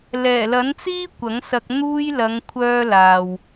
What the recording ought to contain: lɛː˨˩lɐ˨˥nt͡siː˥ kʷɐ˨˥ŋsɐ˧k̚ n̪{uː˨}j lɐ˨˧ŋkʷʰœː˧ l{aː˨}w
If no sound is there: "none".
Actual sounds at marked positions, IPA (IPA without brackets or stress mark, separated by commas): uː˧, aː˨